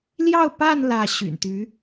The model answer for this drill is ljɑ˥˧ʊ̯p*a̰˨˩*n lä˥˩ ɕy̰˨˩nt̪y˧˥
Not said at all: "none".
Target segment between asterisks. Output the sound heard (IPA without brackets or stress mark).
a˥˧